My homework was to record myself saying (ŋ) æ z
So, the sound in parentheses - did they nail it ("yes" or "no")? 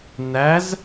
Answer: no